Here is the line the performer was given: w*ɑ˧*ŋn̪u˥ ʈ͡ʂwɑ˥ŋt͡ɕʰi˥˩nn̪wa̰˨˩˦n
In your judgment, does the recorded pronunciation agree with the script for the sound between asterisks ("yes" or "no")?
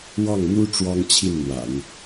no